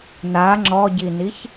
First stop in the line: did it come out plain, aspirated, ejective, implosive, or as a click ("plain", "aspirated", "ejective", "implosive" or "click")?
click